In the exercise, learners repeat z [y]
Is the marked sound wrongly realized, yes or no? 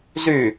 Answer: no